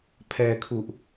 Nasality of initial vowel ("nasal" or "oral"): oral